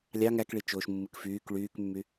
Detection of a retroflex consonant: present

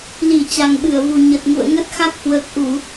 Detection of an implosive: present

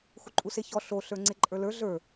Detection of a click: present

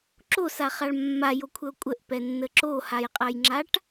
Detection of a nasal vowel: absent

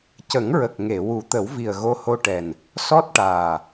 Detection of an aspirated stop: absent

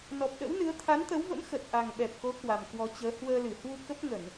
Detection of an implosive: present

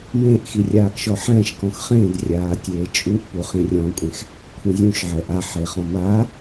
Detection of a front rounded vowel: absent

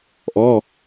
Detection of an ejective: absent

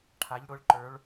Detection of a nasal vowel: absent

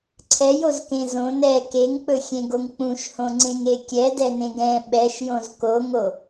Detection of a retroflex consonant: absent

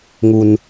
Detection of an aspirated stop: absent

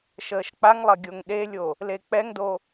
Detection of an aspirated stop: absent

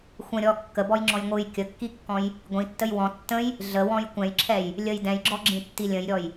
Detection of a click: present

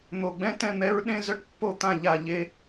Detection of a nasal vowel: present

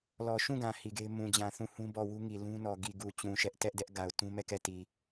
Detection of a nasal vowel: present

